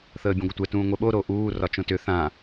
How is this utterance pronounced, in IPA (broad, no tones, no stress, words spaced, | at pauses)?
θəːbʲə̃ɡʷʌtʷɛ tũːŋʷɛɓo ɾoʔuː rɒt͡ʃõtʏ θã